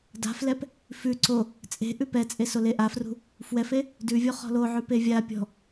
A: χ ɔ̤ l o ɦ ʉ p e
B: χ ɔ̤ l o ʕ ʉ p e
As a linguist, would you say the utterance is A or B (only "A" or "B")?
B